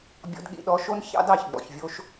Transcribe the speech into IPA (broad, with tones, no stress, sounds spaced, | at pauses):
bʲ ɔ̰˧ d ɠ ḭ˧ ɗ ɔ˧ ʃ o˦ n ç ɑ̰˦ d ɑ˦˨ ç ɡ͡b ɔ̰˨ ç vʲ o˧ ʃ